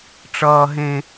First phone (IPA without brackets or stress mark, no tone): ʈ͡ʂ